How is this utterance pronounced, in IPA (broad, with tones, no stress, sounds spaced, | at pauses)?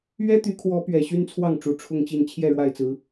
ɥ ɛ˦ t̪ y˨˦ kʰ w ɔ˨˦ p ɥ ɛ˨˩ ɕ y˦ n t͡sʰ w ɑ˥˨ ŋ ʈ͡ʂ u˨˩ ʈ͡ʂʰ ʊ˥˨ ŋ t͡ɕ i˥˨ n t͡ɕʰ j ɛ˥˨ ɻ w a˥˨ ɪ̯ t͡s ɹ̩˨˦